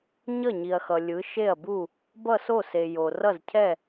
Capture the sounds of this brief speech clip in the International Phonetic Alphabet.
ɲ ʌ˥˩ ɲ i˩ ɐ̯ x ʌ˩ lʲ ɯ˩˧ ʃ e˥˩ ɐ̯ b u˥˩ | b ʌ˥˩ s o˥˩ s e˩ j o˩ r ʌ˥˩ z cʰ ɛ˥˩

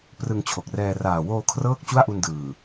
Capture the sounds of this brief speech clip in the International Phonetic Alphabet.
p r ɯ˧ ŋ t͡ɕʰ o˨˩ k̚ r ɛː˧ r aː˨˩ w oː˧ kʰ r ɤː˥˩ k̚ t͡ɕ u˥˩ a̯ ʔ u˧ n d ɯː˨˩

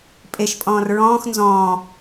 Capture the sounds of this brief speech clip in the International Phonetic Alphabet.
pʼ e ʃ pʼ ɔ̃ː r ɹ ɔ̃ː x n z ɔ̃ː

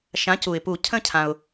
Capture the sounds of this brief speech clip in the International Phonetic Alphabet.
ʃ ã˩˥ c u˩ ɪ̯ p u˨˩˦ cʰ ə̃˥˨ cʰ ã˩ ʊ̯

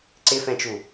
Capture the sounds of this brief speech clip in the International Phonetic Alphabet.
ǀ ɪ f ɛ̃ t͡ʃ u

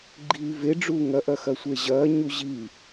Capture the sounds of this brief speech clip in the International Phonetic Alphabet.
ɡ͡ǃ iː v e ɖ͡ʐ uː ŋ ɐ ʔ ɐ x ɐ sʷ e ʑ ɐː ɲ u ʑ i

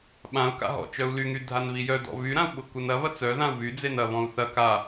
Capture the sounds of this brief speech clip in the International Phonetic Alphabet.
ɓ ã u̯ k a̰ ɦ ɔ̰ t͡ʃ œ u̯ l y ŋ y dʱ a n β i j œ d ɔ̰ β y ɾ ã u̯ ɓ ʊ k u n ɐ β ɐ t͡s œ ð ã u̯ β y d͡z e n ɐ β ɔ̃ u̯ θ ɐ k a

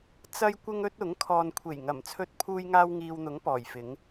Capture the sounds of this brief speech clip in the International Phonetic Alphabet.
t͡s ɐ˥ j kʷ ɪ˥ ŋ ɵ˥ t̚ ʊ˨˥ ŋ kʰ ɔː˨ n kʷʰ e˨˩ j ŋ ɐ˨˩ m t͡sʰ ɵ˧ t̚ pʰ uː˧ j ŋ aː˥ w ŋ iː˧ w n̪ ʊ˨˥ ŋ p ɔː˨˩ j f ɪ˨˥ ŋ

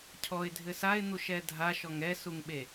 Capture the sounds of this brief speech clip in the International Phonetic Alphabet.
cʰ ɔ ɪ̯ dʱ ɘ s a ɪ̯ n̪ u ʃ ɛ dʱ a ʃ ɔ ŋ ɛ s u ŋ ɓ e

